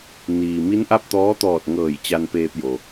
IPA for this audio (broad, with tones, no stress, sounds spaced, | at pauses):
n iː˩ m i˧˥ n ʔ a˥˨ p̚ t̪ ɔː˧˥ t̪ ɔː˧˩ t̚ ŋ ɤː˧˩ j t͡ɕ a˧ n p eː˧ p̚ j o˩